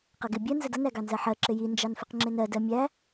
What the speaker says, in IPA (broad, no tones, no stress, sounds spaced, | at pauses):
q ʌ ɡ ɪ bʲ ɜ n z ə d ʌ n æ ɡ ɑ n z ɜ ħ ɜ ǁ ɪ j i n d͡ʒ ɑ n f ɪ q ŋ͡ǁ ɪ n ɜ d ɜ mʲ æ